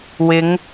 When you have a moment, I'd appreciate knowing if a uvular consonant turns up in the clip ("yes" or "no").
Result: no